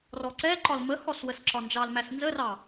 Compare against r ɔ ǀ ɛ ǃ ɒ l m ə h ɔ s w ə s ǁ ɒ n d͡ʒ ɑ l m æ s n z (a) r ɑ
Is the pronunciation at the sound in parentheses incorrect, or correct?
incorrect